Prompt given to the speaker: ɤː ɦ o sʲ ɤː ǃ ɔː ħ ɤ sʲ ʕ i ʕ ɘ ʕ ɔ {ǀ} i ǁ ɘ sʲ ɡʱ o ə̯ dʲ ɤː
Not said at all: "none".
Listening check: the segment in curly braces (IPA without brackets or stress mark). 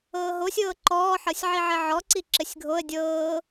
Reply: ǀ